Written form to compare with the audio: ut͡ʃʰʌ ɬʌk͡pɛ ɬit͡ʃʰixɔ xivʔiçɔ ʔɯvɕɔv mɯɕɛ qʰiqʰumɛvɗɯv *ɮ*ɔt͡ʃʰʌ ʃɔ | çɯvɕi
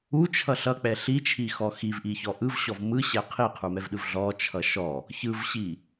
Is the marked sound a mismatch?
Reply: no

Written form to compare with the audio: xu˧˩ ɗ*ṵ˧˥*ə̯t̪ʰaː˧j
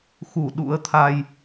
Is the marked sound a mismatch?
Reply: no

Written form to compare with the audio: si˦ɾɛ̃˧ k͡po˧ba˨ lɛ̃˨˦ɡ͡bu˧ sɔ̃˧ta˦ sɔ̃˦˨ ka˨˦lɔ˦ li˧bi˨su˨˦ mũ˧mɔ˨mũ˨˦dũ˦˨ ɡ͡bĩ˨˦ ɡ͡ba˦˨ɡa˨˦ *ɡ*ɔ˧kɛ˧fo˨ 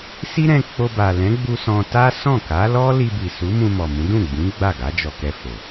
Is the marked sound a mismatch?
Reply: yes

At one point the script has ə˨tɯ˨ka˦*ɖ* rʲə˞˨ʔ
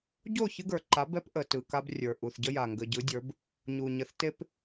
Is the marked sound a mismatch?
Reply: yes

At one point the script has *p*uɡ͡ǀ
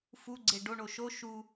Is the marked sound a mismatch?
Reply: yes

